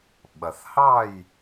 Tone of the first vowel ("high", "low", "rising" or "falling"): low